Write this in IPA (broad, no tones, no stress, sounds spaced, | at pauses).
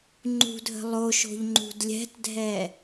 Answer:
ŋ͡ǃ ṳ dʱ ə̤ lˠ o ʃ o̤ ʎ ŋ͡ǃ ṳ d lʲ ɛ̤ t dʱ ɛ